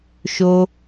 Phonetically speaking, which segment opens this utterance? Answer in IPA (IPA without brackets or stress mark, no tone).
ʃ